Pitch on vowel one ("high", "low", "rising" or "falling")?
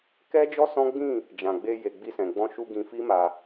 high